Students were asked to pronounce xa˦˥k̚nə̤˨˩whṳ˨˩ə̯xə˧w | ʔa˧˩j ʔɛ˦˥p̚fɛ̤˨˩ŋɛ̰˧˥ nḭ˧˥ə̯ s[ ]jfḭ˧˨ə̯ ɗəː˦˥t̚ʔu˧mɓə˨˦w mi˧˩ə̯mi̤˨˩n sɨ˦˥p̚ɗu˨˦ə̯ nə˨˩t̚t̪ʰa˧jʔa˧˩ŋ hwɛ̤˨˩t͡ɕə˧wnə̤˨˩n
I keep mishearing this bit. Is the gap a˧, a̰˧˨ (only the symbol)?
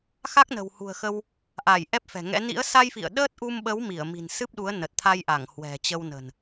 a˧